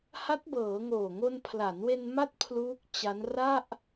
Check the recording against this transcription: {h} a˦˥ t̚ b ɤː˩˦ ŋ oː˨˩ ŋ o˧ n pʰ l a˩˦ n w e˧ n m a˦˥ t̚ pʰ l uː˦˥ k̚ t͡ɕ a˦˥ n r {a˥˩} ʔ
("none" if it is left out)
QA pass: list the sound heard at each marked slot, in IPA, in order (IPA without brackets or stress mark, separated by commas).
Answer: h, a˥˩